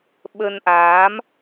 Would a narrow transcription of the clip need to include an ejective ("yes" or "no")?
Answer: no